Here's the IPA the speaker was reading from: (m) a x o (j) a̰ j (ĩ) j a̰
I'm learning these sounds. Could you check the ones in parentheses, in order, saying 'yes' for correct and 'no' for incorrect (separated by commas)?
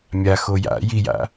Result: no, yes, no